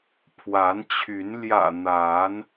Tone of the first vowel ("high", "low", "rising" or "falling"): rising